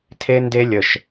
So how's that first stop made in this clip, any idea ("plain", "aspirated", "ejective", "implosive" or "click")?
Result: aspirated